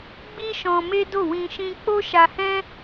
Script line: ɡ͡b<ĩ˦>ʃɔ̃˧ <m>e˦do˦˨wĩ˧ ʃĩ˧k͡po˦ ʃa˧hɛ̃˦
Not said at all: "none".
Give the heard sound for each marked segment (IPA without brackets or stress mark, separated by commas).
i˦, m